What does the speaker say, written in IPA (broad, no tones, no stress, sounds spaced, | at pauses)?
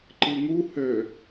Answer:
ǃ ɨ ŋ u h ø